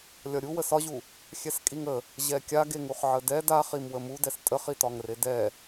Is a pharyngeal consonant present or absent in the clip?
present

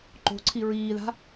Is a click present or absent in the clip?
present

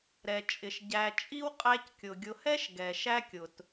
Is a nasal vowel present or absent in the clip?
absent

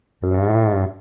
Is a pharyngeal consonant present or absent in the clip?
absent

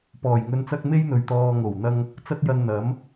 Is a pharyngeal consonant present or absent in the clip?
absent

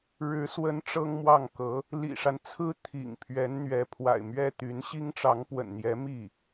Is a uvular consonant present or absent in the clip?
absent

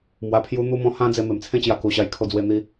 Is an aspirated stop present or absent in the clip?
present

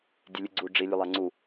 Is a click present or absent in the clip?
present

